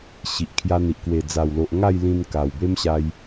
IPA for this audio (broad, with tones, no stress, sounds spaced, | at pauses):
ɕ i˨ ʔ kʰ j a˧ n̪ i˨ ʔ k w e˨˩ d͡z a˨˩ w l o˨ ʔ ŋ a˥˧ j l ĩ˧ n k a˨˩ w b e˦ m ɕ a˧ j